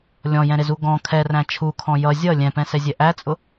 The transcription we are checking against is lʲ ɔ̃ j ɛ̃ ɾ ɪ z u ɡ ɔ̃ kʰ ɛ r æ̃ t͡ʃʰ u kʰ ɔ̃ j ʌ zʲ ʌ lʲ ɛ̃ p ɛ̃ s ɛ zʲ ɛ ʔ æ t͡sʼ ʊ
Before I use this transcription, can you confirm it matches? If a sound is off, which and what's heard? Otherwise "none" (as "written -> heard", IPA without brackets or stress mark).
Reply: none